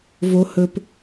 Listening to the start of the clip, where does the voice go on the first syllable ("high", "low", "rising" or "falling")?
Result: high